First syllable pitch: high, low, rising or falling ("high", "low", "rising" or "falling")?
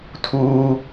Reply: high